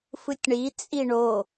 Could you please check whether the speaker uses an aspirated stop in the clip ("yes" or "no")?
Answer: no